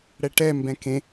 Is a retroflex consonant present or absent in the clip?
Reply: present